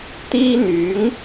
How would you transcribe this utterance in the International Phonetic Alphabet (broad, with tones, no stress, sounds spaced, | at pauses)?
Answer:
t̪ iː˥ n̪ yː˨˥ ŋ